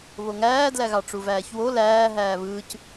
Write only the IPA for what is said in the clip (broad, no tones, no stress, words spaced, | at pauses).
βoŋæːdlæɣɑ ʈ͡ʂuvæːçwo læː ɦæːβɯːc